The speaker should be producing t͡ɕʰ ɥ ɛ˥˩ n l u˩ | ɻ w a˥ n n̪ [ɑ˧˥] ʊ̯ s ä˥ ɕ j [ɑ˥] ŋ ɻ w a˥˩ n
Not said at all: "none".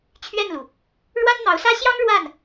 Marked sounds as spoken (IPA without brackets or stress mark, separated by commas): ɑ˧˥, ɑ˥